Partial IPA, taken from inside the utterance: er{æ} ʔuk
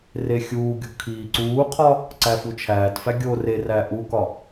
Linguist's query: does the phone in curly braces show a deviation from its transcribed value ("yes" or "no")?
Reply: no